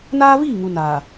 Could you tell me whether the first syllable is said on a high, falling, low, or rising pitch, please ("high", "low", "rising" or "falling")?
high